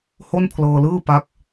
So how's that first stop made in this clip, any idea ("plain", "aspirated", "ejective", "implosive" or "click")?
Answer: aspirated